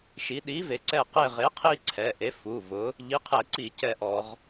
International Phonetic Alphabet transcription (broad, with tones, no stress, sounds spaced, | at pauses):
ʃ i˩˧ ɗ iː˨˥ v e˩˧ ǀ ɛ˦˨ q e˦˨ ʁ e˨˥ qʰ iː˦ ǀʰ ɛ˩˧˩ ʔ e˨˥ f u˩˧˩ v ʊ˨˥ | ʎ i˨˥ qʰ ɛ˧˩˧ ǀ i˧˩˧ c ɛ˦˨ ʔ ɔ˧˩˧ ʁ